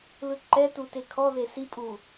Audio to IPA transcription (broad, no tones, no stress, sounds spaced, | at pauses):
l ɯ ǃ ɛ t u t e kʰ ɔ ð e s i pʼ u